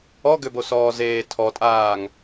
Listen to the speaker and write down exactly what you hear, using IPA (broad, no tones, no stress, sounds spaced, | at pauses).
ɔ ɡ ø b o s ɔː z eː tʰ ɔ tʼ aː ŋ